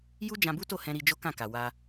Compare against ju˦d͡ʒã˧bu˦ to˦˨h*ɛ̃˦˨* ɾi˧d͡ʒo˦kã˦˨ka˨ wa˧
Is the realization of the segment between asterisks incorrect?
yes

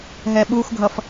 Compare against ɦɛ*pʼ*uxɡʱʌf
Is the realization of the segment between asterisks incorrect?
yes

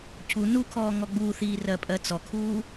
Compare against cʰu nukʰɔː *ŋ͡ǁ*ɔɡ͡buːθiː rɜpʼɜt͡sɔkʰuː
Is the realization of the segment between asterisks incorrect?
yes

